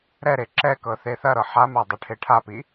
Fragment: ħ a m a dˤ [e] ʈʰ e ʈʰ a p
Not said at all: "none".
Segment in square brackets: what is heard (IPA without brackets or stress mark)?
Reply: e